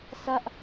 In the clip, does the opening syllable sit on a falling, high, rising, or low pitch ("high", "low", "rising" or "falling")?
falling